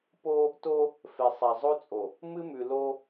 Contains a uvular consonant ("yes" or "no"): no